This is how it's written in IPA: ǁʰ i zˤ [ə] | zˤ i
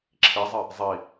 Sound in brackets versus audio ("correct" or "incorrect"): incorrect